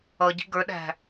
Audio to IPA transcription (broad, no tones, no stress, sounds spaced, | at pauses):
ʌ ɟ i̤ ɡ ə˞ ɗ æ̤